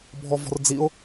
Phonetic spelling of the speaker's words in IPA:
bʱ ɔ v ɔ̤ r d͡z i ʊ̯

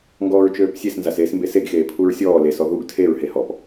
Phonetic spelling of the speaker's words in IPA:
ŋ ɡ ɔː ɹ t͡ʃ øː p sʲ e s n z a s eː s m b e s e ɡ x eː pʰ u ɹ sʲ ɔː l e s ɔ ð u ɡ tʰ e ɹ h e h ɔ p

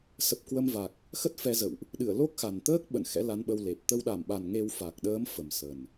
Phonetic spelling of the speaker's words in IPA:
s ə˨˩ p̚ k w ə˧ m v a˨˩ k̚ | x ə˦˥ t̚ f ɛ˧ z ə̰˧˨ w ʔ | ɗ ɨ˧˩ ə̯ l o˦˥ k̚ x a˨˩ n t̪ əː˦˥ k̚ ɓ ə̰˧˨ n x ɛ̰˧˥ l a˨˦ n ɓ ə˧ w l e˨˩ p̚ t̪ ə˧ w ɗ a˧˩ m ɓ a˨˩ n ŋ e˧ w f a˨˩ k̚ ɗ əː˨˦ m f ə˨˩ m s ə˨˩ n

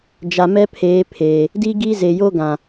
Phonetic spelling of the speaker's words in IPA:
d͡ʒ a˨ m ɛ˦ pʰ eː˨˦ pʰ eː˨ | d i˦ ɡ i˦ z e˨ j o˦ ɡ ã˨

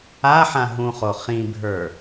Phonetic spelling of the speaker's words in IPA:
a ħ ã ɦ ũ χ o χ ĩ bʱ ə˞

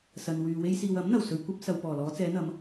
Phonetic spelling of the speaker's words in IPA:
s ɐ˨ n w yː˨ w e˧ j s iː˨ w ɐ˨˥ m n̪ ɐ˨˩ w s ɵ˧ ɥ kʷ ɐ˥ p̚ s ɐ˨ w p ɔː˨˩ l ɔː˨˧ t͡s ɛː˨˧ n̪ ɐ˨˧ m

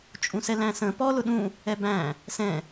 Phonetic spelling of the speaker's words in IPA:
t͡ʃʼ ũ s ɛ l æ̃ s ə̃ p ɔ l ʊ ɗ ũ | ɛ b æ̃ | s ɛ̃

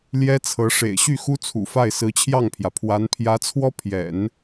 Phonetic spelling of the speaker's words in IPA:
l j ɛ˥ t͡sʰ ɤ˧˥ ʂ ḛ˨˩ ɪ̯ ɕ y˥˩ x u˥ t͡sʰ ṵ˨˩ f a˥˩ ɪ̯ s ɹ̩˧˥ t͡ɕʰ j ɑ˥˩ ŋ pʰ j ä˩ pʰ w a˧˥ n pʰ j ä˧˥ t͡sʰ w ɔ˥ pʰ j ɛ̰˨˩˦ n

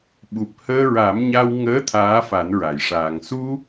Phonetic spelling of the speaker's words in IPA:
ɓ u˨˩ p̚ h əː˧ ɹ a˨˩˦ m ɲ a˧ w ŋ əː˧˥ t̪ʰ aː˧˥ f a˨˩˦ n ɹ a˨˩˨ j ʂ aː˨˩ ŋ s u˧

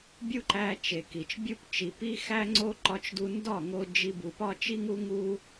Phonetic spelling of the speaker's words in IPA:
bʲ u˦ ǃ æ˧ t͡ʃ e˨ k i˨ t͡ʃ bʲ u˦ p t͡ʃ i˨ p i˦ x æ˦ ŋ͡ǀ o˦ ǃ ɒ˧ t͡ʃ d u˧ n d ɒ˦˨ ŋ o˧ d͡ʒ i˧ b u˨ p ɒ˦ t͡ʃ i˦ ŋ u˦ ŋ u˦

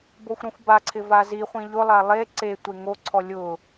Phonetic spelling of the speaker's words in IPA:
b o xʷ ɾ ɔ̃ xʷ b a ǀʰ ɪ v a z i χʷ ĩ ʎ ʊ lˠ a lˠ e ǀ e tʷ e ŋ o ǀʰ ɔ lʲ ʊ

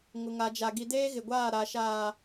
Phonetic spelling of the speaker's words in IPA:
ŋ ʊ˨ ŋ a˨ d͡ʒ a˨ ɡ i˨ d eː˦ ɣ ɪ˨ ɡʷ aː˦˨ ɾ a˨ ʃ aː˨

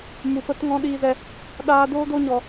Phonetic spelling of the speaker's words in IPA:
m u˨ p ə˧ t ŋ ɔ̃˧ ɗ iː˧ z ɛ˧ | ɗ aː˧ d oː˦ d o˦ ɲ ɔ˧

